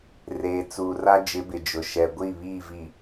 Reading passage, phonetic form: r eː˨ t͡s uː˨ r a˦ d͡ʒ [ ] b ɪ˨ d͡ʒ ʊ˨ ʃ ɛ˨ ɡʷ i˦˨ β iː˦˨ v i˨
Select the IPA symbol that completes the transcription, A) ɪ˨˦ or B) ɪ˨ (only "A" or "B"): A